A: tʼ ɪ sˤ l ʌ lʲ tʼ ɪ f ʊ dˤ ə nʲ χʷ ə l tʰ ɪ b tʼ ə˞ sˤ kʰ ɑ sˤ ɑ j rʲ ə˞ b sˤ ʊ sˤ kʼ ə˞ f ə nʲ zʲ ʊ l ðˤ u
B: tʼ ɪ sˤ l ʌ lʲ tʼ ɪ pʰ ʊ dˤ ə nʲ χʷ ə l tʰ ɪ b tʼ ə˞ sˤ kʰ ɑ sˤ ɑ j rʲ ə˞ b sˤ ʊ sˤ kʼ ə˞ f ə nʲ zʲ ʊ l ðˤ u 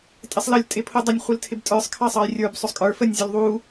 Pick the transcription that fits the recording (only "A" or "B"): B